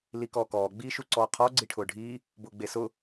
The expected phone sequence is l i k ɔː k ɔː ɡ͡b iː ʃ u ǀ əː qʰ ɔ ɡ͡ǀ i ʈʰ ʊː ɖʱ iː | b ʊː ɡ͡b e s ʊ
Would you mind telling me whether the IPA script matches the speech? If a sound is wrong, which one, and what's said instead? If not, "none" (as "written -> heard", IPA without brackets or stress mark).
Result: əː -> ɔː